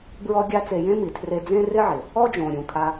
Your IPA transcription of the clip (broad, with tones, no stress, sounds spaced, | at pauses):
b ɹ ɔ˦ ɡʲ a˦ t͡s e˧ j ẽ˦ m i˨ tʰ r e˧ d͡z ẽ˦ r ɪ˦ ʕ ɪ˨ | ɔ˦ d͡ʒ õ˨ ɾʲ ũ˨ kʰ a˧